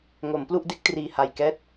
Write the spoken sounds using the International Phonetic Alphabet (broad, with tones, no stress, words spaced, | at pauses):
ŋo˩˦mplu˥˩ʔde˦˥k̚ triː˨˩ha˨˩j kɛː˦˥t̚